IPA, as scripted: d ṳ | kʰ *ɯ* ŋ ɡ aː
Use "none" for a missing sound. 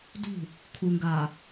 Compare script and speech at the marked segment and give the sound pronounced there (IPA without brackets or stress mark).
u